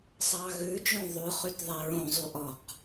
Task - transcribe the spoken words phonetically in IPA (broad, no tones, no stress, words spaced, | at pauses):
sˤɑɣʉd͡ʒõ ðˤʉ χytðˤeɹõzˤy ʔɔq